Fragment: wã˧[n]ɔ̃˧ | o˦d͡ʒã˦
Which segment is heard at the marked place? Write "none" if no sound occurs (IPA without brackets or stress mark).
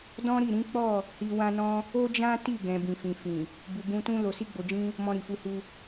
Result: n